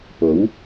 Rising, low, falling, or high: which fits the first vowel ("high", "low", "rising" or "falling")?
rising